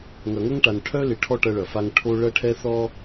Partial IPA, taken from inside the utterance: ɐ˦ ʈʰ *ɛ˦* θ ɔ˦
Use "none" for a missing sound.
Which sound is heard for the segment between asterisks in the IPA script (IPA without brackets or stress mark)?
ɛ˦